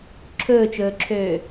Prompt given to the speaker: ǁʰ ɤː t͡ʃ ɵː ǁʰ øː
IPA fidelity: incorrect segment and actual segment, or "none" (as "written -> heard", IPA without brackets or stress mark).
ɤː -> ɵː